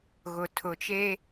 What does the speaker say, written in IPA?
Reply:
ɣ ʊ˨ tʰ ʊ˨ t͡ʃ e˦

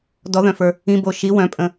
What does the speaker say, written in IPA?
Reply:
d ɔ ð œ̃ f ə˞ | ĩ b o ʃ i w œ̃ pʼ ə̃

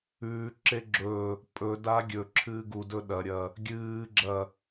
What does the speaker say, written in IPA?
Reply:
ʉː ǁ e ɡ͡ǁ ɵ | pʼ ɵ d a ɡʲ ɵ ǁʰ ɨː ɡ u d ɵ ɗ ɐ ɾʲ ɐ | ɡʲ ɨː ɡ͡ǁ ɐ

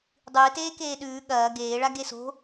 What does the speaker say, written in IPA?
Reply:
dˤ ɨː t eː k eː ɗ ʉː ɠ ɐː ɡ eː ɭ a ɡ e s o̤

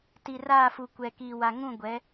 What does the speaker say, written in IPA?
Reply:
t i˨ r aː˦˨ f u˨ kʷ ɛ˨ k iː˨ w a˨ ŋ ũ˦˨ ɡʷ ɛ˨˦

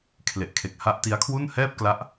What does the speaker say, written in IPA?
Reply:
kʰ l e˨˩ ʔ kʰ e˨˩ k̚ h a˦˥ ʔ t i˦˥ a̯ kʰ w u˥˩ n h ɛː˥˩ p̚ k l a˦˥ ʔ

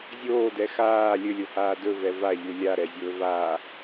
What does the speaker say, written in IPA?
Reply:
zʲ oː d ɛ x aː lʲ ɵ lʲ o h aː d ɵ v ɛ v a ʎ u lʲ a ɾ ɛ zʲ ɵː v a

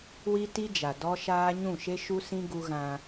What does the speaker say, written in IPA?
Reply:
w i˦ t i˦ d͡ʒ a˨ d ɔ˦ ʃ aː˦ ɲ ũ˦˨ ʃ e˦ ʃ u˦ s ĩ˦ ɡ u˦ ɣ ã˦

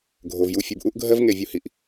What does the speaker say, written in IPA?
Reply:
ɡʱ o˨ v j u˧ fʲ u˨ b ʔ u˦ ʔ ɡʱ ɜ˦ v ŋ e˧ vʲ u˧ h i˨ ʔ

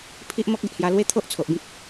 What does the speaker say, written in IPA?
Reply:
pʰ i˦ ʔ m ɔ˦ k̚ e˨ ʔ h j a˧ l w e˦ t̪ʰ o˦ ʔ t͡sʰ o˨ ʔ b ĩ˦ k̚

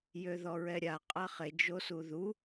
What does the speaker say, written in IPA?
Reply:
j ø ð ɔ ɹ ɛ ɾʲ a qʼ a χ e d͡ʒ o s u ð u

